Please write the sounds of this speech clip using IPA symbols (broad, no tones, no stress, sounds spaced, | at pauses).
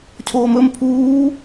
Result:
cʰ oː m ɵ m pʰ uː